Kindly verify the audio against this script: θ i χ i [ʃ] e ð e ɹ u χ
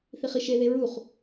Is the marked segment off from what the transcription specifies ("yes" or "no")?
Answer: no